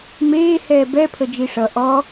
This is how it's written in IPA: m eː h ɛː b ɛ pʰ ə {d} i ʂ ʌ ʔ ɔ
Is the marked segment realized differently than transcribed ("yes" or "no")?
yes